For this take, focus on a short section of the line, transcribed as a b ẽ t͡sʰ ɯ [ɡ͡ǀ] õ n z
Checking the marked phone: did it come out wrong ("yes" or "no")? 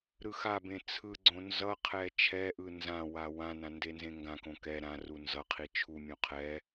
no